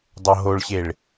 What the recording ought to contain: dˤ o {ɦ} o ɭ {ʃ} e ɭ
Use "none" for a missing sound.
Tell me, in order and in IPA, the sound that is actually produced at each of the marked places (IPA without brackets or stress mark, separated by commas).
ɦ, ɕ